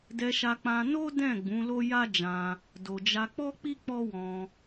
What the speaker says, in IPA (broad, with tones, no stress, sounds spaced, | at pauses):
d ɛ˧ ʃ a˧ k͡p ã˧ n o˦ d ɛ̃˦˨ ɡ͡b ũ˨˦ l o˦ j a˦ d͡ʒ ã˧ | d o˨ d͡ʒ a˧ k͡p ɔ˦ k͡p i˦ k͡p ɔ˦ w ɔ̃˧